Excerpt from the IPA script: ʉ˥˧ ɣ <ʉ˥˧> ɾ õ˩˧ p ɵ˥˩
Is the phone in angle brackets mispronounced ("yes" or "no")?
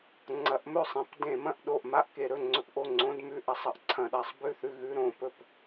yes